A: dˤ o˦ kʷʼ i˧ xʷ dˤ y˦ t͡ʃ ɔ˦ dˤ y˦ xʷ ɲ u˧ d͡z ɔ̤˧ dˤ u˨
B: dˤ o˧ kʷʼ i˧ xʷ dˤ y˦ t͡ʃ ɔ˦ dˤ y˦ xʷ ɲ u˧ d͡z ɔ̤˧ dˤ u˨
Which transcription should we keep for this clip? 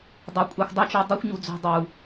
B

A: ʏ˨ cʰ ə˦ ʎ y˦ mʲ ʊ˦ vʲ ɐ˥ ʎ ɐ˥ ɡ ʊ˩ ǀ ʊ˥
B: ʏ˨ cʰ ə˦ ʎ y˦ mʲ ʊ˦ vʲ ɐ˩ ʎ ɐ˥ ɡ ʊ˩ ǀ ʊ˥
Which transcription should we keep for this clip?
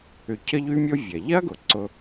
B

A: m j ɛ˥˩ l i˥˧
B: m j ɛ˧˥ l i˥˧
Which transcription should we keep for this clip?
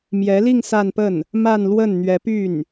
B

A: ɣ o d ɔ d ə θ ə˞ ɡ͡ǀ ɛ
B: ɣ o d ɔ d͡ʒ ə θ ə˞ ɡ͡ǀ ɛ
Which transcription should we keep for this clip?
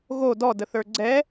A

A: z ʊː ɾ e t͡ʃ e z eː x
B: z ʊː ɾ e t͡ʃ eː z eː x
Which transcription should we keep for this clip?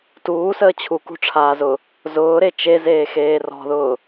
A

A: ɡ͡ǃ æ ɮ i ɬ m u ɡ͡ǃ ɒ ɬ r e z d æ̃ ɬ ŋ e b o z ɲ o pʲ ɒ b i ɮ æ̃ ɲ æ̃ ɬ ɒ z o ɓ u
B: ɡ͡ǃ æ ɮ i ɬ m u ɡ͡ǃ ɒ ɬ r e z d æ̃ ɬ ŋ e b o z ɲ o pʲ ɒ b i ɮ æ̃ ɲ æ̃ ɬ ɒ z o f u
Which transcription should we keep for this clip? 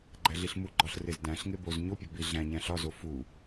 B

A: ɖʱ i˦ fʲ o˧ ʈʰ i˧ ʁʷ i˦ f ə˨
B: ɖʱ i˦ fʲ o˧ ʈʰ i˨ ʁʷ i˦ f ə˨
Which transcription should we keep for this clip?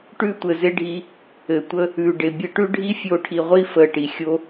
B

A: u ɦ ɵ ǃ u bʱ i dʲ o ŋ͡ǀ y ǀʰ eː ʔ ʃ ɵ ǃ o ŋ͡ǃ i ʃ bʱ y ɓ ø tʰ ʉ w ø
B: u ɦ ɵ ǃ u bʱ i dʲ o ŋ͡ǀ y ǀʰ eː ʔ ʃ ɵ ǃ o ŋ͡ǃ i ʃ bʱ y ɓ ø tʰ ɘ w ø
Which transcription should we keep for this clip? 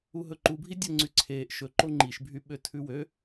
A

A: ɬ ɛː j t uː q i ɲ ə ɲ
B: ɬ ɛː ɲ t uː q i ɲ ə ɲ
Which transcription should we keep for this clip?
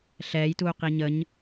A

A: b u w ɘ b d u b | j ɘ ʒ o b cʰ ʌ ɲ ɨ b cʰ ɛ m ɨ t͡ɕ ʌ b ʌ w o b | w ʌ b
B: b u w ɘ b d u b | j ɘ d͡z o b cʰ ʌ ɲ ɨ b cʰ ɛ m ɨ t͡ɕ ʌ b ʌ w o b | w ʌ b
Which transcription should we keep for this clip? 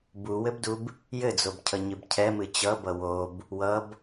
B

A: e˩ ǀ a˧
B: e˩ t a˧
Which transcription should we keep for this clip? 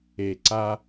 A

